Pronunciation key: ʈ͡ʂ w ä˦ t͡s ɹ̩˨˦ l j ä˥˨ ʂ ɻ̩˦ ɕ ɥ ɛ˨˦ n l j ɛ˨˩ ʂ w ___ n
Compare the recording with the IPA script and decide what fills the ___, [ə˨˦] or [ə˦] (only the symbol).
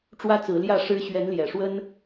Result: ə˦